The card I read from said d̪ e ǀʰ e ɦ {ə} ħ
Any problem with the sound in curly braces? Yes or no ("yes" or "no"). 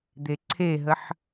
no